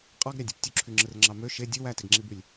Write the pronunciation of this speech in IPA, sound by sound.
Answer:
qʼ ɑ ɡ ɾʲ ɑ dʲ u p tʲ u ǁʰ y ŋ͡ǁ ɯ r ŋ͡ǁ ɑ m ø ʃ e dʲ u w æ t e ɡ ŋ͡ǁ i b y lʲ

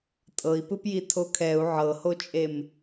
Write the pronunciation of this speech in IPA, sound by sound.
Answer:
tʼ ɤ i̯ p ɯ p j i tʰ o kʰ ɛ u̯ ʕ ɤ h o t͡ʃʼ e m

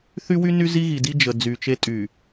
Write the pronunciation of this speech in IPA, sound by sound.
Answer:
θ y˦ w y˦ n y˦ z i˦ ɣ i˨ d i˦ d͡ʒ ə˨ d͡z y˨ t͡ʃ e˦ tʼ y˨

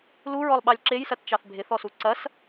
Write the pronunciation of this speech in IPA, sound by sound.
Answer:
l u ɹ ɔ lˠ ɓ ɑ lʲ ǁ e j s ɐ t t͡ʃ ɑ θ bʱ ɪ θ ɔ s u ǀ ɐ s

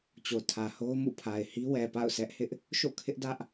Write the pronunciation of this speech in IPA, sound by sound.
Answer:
t͡ɕ o˨ tʰ ä˨ h o˦ ʊ̯ m ṵ˦˨ pʰ a˨ ɪ̯ h i˦ w ɛ˨ p a̰˦˨ ʊ̯ sʰ ɛ˦ ʔ h ɪ˦ ʔ | ʃ o̰˦˨ kʰ ɪ˦ ʔ d ä˦ ʔ

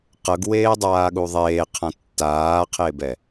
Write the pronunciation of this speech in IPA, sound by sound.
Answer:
q ɤ ɡ w eː dˤ aː ɠ u ðˤ eː qʰ ã tː aː qʰ e b ɛ

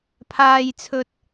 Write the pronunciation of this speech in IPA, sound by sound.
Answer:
pʰ aː˨ j t͡sʰ ɵ˨ t̚

